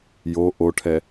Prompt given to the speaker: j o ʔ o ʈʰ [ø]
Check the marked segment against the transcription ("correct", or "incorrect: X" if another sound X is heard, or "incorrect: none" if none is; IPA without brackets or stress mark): incorrect: ɛ